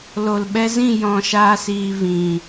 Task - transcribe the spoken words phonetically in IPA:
l o˨ l ɓ ɛ˧ z ĩ˦˨ j ɔ̃˦˨ ʃ aː˦ s iː˧ v ĩ˨

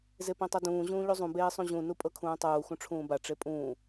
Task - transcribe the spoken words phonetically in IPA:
z e p ẽ tˤ ɤ d ũː ʑ ũː ʎ u zˤ ũ b eː sˤ ũ ʑ ũ n u pʼ ɤ kʰ ũː tˤ uː x ũ ʈ͡ʂʰ ũː b a ʈ͡ʂ e pʼ ũː

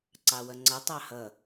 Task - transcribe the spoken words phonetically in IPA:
ǀ ɑ w ʌ ŋ͡ǀ ʌ tˤ ɑ h ʌ

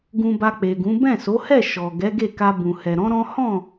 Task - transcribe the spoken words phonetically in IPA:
ɡ ũ˧ b a˧ k͡p e˨ ɡ ũ˨˦ b ɛ̃˦˨ s o˨˦ h ɛ˦˨ ʃ ɔ˨ ɡ ɛ˨˦ ɡ e˦˨ k a˧ b ũ˨ h ɛ˨ ɾ ɔ̃˨˦ ɾ ɔ̃˦ h ɔ̃˦˨

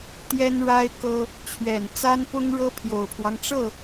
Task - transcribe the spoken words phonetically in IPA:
t̪ j ɛ˥ n ɻ a˥ ɪ̯ k ɤ˥ | t͡ɕʰ ɥ ɛ˨˩ n t͡s a˥ n p ʊ˥ ŋ ɻ ɤ˥ pʰ j o˨˩ ʊ̯ pʰ w ɑ˦ ŋ ʈ͡ʂ ɤ˥˩

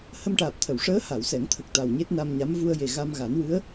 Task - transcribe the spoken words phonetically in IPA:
h ə˧ m ʈ aː˨˩ p̚ t̪ʰ ə˨˩˨ w ʂ əː˧˥ h a˨˩˨ w s ɛ˨˩˦ ŋ t̪ʰ ə˨˩ k̚ t̪ a˨˩ w ɲ e˦˥ t̚ n a˧ m ɲ a˧˥ m v u˧ ə̯ j e˨˩ ɣ a˧ m ɣ a˨˩˦ n w ɨ˧˥ ə̯

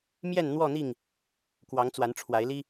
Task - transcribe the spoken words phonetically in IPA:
m j ɛ˥˨ n n̪ w ɔ˥˨ n̪ i˥˨ ŋ | k w ɑ˨˦ ŋ t͡s w a˨˦ n ʈ͡ʂʰ w a˨˦ ɪ̯ l i˦

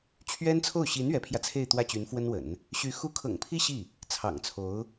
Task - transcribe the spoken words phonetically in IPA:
t͡ɕʰ ɥ ɛ˥ n t͡sʰ o˥˩ ʊ̯ ɕ i˧˥ n ɥ ɛ˧˥ pʰ j ä˧ t͡sʰ e˥˧ ɪ̯ t̪ w ä˥˩ t͡ɕ y˧˥ n f w ə˥ n w ə̰˨˩˦ n | ɕ y˧˥ x u˥ kʰ ɤ̰˨˩ ŋ pʰ i˥ ɕ i˥˩ | t͡sʰ ɑ̰˨˩ ŋ t͡sʰ o˧˥ ʊ̯

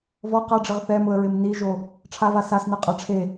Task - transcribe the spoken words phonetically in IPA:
v ɔ q a ɖ͡ʐ ɪ ʁ θ ɛ m ʊ ə̯ ɹ ɪ m n i ʒ o | ʈ͡ʂʰ a v a s a s n ɛ qʼ a ʈ͡ʂʰ e

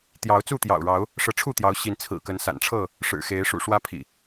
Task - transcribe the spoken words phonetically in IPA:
t̪ j ɑ˨˦ ʊ̯ t͡s u˥˨ t̪ j ɑ̰˨˩ ʊ̯ ɻ ɑ˨˦ ʊ̯ | ʂ ɤ˨˦ ʈ͡ʂʰ u˥˨ t̪ j ɑ˨˦ ʊ̯ ɕ i˨˦ n t͡sʰ ɹ̩˨˩ k ə˨˦ n s a̰˨˩ n ʈ͡ʂʰ ɤ˥˨ | ʂ ɻ̩˨˩ x e˨˦ ɪ̯ ʂ ṵ˨˩ ʂ w ä˦ pʰ ḭ˨˩

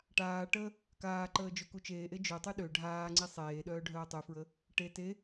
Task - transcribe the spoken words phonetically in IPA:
ʈ aː ʈ ə | k aː ǃ əː d͡ʒ ø k u t͡ʃ eː ʔ e d͡ʒ ø tˤ y ɗ ø ɖʱ aː ŋ͡ǀ i sˤ eː ɗ œː ɖʱ œː tˤ y f ɹ ə | ʈ e t e

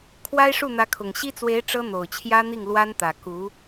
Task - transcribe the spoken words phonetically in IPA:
kʰ w a˥ ɪ̯ ʂ u˥˩ n̪ ä˧˥ kʰ ʊ˨˩ ŋ ɕ i˥ t͡s w e˧˥ ɪ̯ ʈ͡ʂ ɤ˥ n̪ o˨˩ ʊ̯ t͡ɕʰ j ä˥ n̪ i˥˩ ŋ l w a˥ n t̪ ä˨˩ k u˧˥

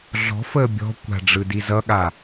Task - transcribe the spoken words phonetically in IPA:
ɮ ɔ̤ f əː bʲ ɔ̤ kʷ a̤ ɖ͡ʐ ɯ d i z ʌ ɠ a

